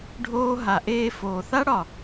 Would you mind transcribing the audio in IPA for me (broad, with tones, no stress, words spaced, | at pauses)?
ɖʱoː˦ ɦa˨ ʔeː˧foː˨ θa˦ɽɒ˨